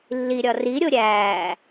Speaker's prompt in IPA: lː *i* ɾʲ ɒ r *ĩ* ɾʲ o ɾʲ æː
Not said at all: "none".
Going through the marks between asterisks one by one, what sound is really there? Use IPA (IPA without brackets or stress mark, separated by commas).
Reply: i, i